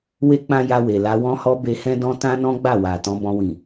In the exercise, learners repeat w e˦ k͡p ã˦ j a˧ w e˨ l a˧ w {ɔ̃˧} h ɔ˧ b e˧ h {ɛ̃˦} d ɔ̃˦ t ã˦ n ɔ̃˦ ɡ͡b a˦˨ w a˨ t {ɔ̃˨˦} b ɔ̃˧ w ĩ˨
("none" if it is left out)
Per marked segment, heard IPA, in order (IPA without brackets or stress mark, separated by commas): ɔ̃˧, ɛ̃˦, ɔ̃˨˦